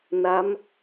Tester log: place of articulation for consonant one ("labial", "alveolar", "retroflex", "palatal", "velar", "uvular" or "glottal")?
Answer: alveolar